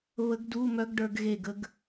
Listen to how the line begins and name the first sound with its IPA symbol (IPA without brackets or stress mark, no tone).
β